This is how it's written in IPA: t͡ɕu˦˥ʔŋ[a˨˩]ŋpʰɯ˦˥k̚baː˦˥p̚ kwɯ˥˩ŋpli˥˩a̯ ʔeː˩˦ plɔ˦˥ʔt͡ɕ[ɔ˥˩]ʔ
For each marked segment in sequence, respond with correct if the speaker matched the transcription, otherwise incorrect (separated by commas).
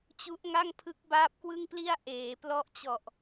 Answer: incorrect, incorrect